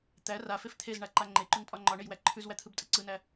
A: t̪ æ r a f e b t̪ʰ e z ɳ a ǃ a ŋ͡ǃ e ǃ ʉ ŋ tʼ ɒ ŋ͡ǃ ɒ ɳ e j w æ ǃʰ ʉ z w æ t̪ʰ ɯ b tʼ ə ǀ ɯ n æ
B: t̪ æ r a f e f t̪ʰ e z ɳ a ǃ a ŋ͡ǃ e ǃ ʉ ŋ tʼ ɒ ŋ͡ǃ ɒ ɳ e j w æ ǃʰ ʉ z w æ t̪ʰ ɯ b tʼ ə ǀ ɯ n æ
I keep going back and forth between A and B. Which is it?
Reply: B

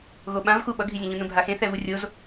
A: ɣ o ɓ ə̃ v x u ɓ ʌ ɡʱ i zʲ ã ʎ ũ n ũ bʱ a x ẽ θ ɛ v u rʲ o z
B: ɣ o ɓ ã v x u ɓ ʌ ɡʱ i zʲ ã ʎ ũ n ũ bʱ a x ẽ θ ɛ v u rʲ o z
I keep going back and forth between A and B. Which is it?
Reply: B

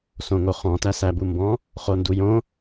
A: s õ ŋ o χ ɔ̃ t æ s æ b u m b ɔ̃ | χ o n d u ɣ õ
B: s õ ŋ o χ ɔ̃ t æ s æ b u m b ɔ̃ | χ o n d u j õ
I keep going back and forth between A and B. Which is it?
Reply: B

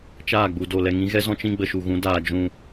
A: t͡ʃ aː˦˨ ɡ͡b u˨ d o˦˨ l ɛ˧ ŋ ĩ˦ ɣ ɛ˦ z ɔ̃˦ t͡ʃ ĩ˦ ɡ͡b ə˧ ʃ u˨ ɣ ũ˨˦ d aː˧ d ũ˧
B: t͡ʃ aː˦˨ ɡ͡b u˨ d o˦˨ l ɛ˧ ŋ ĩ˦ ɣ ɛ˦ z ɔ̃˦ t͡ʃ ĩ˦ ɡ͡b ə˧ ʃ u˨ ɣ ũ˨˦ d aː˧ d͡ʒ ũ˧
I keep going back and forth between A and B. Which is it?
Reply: B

